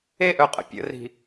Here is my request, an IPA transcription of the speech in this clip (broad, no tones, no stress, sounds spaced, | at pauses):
e ʔ œ qʼ ə̰ pʲ ə̰ r i̤